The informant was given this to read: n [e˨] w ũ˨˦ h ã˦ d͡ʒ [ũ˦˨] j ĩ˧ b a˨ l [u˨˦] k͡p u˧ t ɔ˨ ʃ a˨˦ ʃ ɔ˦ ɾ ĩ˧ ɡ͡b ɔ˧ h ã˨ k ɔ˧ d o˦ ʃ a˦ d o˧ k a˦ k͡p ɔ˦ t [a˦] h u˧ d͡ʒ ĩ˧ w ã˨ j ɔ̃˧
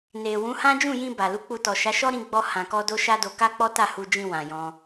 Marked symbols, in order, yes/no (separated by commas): yes, yes, yes, no